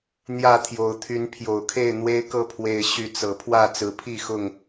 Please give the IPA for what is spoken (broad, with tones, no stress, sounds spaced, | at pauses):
n̪ j ä˥˨ t̪ʰ j o˨˦ ʊ̯ t̪ʰ y˨˦ n pʰ j o˨˩ ʊ̯ kʰ e˥˨ ɪ̯ n̪ w e˦ ɪ̯ k ɤ˥˨ pʰ w e˨˩ ɪ̯ ɕ y˨˦ t͡s ɤ˨˩ pʰ w ä˥˨ t͡s ɹ̩˨˦ pʰ i˥˨ x ʊ˥˨ ŋ